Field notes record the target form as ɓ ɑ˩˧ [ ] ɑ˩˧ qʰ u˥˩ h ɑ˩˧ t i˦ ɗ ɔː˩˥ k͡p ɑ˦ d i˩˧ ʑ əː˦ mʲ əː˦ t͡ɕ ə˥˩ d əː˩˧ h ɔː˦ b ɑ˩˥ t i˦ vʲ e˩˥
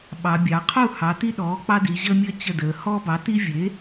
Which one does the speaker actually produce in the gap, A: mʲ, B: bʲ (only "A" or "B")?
B